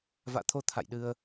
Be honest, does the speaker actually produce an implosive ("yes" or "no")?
yes